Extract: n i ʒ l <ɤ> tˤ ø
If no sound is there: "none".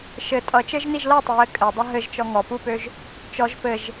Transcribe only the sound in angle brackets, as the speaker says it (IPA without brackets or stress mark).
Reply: ɤ